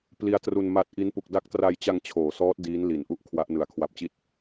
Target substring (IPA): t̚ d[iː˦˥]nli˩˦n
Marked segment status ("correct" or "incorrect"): correct